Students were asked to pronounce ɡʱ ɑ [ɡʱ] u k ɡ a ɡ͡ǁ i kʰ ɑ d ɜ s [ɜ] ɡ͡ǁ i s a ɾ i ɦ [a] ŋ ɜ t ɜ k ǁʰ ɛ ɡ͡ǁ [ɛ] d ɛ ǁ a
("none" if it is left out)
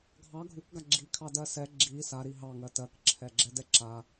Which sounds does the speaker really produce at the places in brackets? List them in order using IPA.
ɡʱ, ɛ, ɑ, ɛ

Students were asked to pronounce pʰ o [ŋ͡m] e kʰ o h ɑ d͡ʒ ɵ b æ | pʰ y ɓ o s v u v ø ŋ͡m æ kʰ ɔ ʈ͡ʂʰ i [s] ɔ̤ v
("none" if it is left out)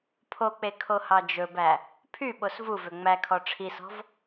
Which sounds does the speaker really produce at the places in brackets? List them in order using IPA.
k͡p, s

